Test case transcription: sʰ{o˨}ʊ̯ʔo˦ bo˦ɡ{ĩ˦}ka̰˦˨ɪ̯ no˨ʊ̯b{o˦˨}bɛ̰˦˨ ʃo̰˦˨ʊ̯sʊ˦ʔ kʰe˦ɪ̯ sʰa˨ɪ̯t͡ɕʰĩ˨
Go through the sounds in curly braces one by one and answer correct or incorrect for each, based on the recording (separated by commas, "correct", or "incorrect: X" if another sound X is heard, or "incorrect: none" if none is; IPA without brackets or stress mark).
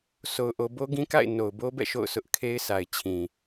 incorrect: o˦, correct, incorrect: o˦